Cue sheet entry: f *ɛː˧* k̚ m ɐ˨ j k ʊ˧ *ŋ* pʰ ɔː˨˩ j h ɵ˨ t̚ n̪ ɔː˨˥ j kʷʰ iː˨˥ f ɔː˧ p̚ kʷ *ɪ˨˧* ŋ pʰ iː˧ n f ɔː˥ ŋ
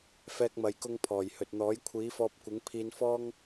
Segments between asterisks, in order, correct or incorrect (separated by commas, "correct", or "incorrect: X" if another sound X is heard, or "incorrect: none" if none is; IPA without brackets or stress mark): correct, correct, incorrect: ɪ˨˥